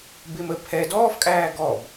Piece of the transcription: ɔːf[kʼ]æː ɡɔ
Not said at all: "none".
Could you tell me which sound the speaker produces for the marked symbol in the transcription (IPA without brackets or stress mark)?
kʼ